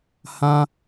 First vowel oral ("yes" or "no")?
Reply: no